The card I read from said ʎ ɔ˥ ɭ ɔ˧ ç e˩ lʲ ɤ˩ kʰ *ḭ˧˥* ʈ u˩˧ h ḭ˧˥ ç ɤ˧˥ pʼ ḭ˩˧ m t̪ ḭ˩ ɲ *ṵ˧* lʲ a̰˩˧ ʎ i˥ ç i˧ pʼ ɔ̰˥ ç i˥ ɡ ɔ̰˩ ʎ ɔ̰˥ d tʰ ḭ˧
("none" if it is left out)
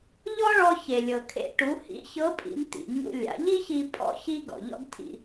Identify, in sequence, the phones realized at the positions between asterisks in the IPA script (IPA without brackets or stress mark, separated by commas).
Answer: ḛ˧˥, ṵ˧